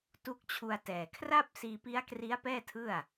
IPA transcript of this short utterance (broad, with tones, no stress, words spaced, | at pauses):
tu˦˥k̚t͡ɕʰu˧a̯tɛː˨˩ kʰra˥˩p̚ siː˧pi˦˥a̯ kri˦˥a̯pɛː˥˩tʰɯ˥˩a̯